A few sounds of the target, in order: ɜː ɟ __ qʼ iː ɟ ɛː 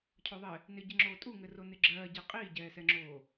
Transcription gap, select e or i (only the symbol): e